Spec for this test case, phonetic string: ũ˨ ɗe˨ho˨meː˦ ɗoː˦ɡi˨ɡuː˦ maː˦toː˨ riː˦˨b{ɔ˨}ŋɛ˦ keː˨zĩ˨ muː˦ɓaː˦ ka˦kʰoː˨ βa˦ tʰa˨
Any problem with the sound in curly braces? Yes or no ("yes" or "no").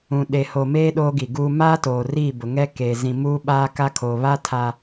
yes